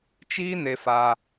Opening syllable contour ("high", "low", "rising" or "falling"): high